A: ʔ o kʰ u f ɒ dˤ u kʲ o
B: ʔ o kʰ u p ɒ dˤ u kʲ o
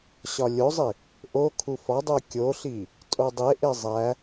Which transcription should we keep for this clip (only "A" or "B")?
A